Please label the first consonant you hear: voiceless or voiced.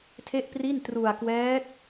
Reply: voiceless